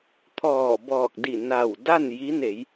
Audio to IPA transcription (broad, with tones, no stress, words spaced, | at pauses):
t̪ʰɔː˧˩bɔː˧˩k̚di˧˩ na˧˩wda˥˨n ji˧˥ne˩˧j